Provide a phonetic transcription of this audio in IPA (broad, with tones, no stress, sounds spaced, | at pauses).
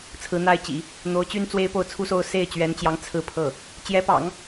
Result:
t͡sʰ ɹ̩˧˥ n̪ a˥˩ ɪ̯ t͡ɕ ḭ˨˩˦ | n̪ o˧˥ ʊ̯ t͡ɕ y˥ n t͡s w e˥ ɪ̯ p o˥˩ ʊ̯ t͡sʰ u˥ s o˥˧ ʊ̯ s e˥˩ ɪ̯ t͡ɕ ɥ ɛ˧˥ n t͡ɕ j ɑ˧˥ ŋ t͡sʰ ɹ̩˥˧ pʰ ɤ˥˩ | t͡ɕ j ɛ˧˥ p ɑ̰˨˩˦ ŋ